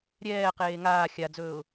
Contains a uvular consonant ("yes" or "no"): yes